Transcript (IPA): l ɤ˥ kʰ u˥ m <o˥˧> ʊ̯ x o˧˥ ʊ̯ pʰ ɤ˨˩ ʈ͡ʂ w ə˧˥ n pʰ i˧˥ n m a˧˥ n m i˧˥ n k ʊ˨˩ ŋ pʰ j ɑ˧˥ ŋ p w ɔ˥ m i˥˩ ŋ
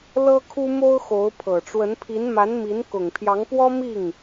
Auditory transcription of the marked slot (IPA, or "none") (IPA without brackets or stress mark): o˥